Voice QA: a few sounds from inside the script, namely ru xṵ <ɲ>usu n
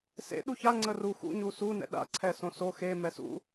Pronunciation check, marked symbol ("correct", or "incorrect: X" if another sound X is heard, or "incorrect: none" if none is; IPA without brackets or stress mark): correct